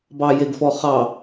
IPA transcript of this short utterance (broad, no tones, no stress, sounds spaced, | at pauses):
b ɑ j e ɡ f ɔ χ ɑ